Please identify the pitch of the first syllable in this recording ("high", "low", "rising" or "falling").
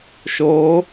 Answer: rising